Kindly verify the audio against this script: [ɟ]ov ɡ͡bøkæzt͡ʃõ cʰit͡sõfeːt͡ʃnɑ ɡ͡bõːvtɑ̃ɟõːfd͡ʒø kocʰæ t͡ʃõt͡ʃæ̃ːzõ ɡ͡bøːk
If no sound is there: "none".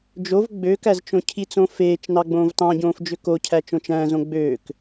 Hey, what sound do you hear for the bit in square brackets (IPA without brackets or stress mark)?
d͡ʒ